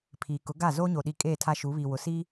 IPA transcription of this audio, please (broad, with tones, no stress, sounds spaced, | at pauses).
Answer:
pʰ iː˨ k ʊ˨˦ ɡ a˦˨ z oː˦ ɲ o˨ ɗ i˨˦ kʼ eː˦˨ tʰ a˦ ʃ u˨˦ β iː˨ w ʊ˨ s i˦